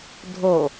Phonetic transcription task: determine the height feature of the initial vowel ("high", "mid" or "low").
mid